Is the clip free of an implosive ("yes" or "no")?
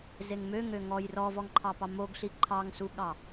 no